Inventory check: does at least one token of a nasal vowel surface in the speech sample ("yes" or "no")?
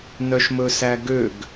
no